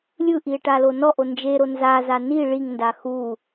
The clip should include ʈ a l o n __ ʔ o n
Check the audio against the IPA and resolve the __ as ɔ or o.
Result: ɔ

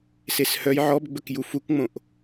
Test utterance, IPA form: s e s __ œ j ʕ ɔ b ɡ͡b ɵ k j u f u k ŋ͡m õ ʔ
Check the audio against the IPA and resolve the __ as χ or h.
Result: h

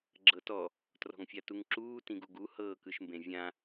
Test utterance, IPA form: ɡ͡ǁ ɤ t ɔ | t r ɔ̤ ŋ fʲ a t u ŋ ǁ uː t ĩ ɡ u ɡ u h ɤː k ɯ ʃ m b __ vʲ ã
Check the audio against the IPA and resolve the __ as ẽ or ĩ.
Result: ẽ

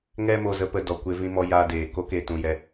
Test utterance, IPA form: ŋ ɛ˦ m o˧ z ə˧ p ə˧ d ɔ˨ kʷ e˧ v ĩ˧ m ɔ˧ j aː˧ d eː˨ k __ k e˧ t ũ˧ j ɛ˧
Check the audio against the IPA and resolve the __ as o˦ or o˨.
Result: o˦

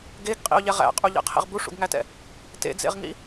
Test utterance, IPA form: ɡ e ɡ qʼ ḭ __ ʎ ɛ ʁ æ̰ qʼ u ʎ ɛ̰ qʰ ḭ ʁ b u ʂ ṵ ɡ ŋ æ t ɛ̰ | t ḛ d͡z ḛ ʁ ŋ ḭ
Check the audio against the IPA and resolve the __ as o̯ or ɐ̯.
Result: o̯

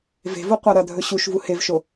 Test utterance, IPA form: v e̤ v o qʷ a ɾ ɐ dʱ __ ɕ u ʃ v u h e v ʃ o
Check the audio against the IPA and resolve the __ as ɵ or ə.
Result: ɵ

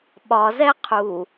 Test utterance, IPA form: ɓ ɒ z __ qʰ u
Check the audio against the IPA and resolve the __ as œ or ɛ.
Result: ɛ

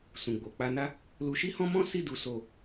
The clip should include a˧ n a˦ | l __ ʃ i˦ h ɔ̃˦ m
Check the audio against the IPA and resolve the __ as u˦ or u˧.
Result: u˧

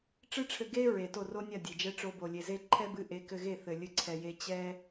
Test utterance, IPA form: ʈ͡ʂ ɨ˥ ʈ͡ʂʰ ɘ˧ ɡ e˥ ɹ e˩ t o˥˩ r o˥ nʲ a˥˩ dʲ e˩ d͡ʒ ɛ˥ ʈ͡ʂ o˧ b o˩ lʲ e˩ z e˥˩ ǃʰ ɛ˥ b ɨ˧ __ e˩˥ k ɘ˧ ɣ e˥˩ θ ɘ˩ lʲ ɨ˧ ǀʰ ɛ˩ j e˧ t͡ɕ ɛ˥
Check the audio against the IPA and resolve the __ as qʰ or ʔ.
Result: ʔ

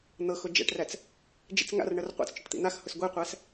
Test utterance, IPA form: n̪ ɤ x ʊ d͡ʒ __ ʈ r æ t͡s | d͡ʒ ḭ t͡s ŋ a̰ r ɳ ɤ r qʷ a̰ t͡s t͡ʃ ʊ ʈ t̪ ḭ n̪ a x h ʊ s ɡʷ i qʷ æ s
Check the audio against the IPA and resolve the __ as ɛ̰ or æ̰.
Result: ɛ̰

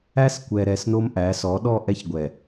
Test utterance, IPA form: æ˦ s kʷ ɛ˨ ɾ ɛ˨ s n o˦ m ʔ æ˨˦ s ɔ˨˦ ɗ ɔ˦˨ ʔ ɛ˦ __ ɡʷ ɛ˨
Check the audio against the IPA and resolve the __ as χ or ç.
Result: ç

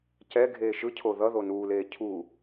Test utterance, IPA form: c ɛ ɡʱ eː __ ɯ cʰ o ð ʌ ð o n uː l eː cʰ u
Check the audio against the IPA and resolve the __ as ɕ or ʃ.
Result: ʃ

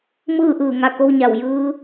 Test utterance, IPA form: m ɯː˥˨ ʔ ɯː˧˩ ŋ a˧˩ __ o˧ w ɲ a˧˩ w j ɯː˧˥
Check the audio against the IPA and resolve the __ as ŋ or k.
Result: k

